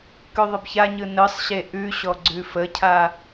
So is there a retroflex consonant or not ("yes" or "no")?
no